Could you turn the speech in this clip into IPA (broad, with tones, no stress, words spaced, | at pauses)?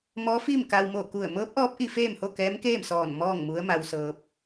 mɔː˧˥fiː˥˨mka˧w mo˧˩ku˧˩ə̯mɤː˧˥p̚ʔɔː˧˥p̚ ʔi˧feː˥˨mho˥˨kɛː˧˥m keː˥˨msɔː˧˩n mɔː˥˨ŋmu˧˥ə̯ ma˧wsɤː˧p̚